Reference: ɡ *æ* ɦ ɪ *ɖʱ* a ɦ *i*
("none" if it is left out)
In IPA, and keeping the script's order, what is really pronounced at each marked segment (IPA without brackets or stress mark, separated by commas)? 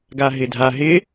a, dʱ, ɪ